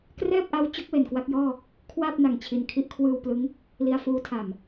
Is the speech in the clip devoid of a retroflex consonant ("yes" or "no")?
yes